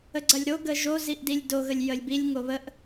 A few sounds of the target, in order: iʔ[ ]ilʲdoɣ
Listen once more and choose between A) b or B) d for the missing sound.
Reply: B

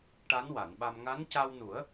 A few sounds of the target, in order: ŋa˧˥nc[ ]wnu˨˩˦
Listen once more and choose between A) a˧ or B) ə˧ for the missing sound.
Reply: A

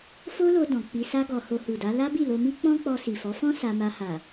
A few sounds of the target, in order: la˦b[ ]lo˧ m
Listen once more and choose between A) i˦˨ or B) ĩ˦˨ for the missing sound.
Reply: A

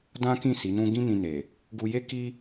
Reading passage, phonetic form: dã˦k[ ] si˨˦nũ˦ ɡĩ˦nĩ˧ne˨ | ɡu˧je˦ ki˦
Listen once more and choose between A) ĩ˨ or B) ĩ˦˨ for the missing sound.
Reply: B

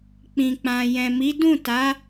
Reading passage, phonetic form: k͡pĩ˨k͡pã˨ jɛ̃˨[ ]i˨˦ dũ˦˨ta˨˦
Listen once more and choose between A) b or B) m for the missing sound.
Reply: B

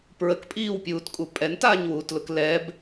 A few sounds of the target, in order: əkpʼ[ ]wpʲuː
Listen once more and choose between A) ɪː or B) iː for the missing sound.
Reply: B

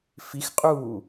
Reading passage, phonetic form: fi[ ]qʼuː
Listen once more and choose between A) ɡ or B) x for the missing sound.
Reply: B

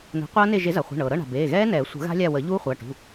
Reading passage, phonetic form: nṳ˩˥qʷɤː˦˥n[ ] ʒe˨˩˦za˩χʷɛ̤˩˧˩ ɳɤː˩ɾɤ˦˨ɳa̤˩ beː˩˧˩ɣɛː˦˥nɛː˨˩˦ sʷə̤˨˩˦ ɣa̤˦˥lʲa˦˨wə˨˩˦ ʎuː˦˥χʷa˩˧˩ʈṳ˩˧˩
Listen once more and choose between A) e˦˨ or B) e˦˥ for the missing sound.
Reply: A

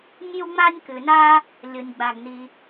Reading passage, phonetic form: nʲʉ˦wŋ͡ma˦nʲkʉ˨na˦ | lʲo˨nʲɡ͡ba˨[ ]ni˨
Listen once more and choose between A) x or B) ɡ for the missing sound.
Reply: B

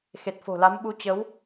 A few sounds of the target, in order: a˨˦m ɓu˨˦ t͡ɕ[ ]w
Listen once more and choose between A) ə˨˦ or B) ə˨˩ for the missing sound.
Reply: A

